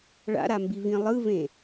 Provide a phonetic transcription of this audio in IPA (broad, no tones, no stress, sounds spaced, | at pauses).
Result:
ɭ a̰ ɾ a m b i v ĩ lˠ ɯ v ẽ